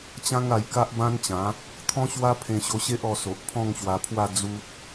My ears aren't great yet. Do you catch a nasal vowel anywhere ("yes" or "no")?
yes